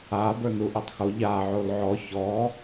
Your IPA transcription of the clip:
a bə˞nuʔetˤxo ʎa ʕolʕɔ çɔ

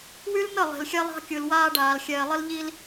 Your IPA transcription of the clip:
wy˦lnə˦˨ lˠe̤˨lxʲɛ˦lˠɑ̤˦kʲɯ˨l waː˦ɖaː˨l xʲɛː˨lˠə˦lʎi˦l

